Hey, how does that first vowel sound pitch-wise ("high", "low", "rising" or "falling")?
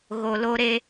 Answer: low